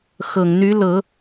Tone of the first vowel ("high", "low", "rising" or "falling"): low